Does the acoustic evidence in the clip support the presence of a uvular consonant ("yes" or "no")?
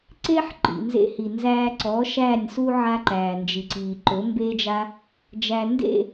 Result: no